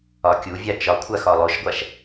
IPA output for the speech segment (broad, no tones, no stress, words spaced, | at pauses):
ɒkʲuvʲa t͡ʃɒkʷʰa xɒlˠoʃɡʷaʃ